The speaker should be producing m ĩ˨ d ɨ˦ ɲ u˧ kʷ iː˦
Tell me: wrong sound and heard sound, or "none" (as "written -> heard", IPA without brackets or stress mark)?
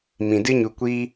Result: none